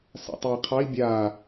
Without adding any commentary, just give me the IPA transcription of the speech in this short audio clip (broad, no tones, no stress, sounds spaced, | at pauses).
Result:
s a̰ tˤ i qʰ ɑ i̯ bʲ a